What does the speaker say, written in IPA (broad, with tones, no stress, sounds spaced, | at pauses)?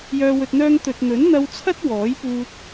j œː˨ w ɵ˨ t̚ n̪ œː˧ ŋ t̪ ɵ˨ t̚ n̪ ɵ˨˥ n n̪ ɐ˧ w t͡sʰ ɐ˥ t̚ w ɔː˨˥ j p uː˧ t̚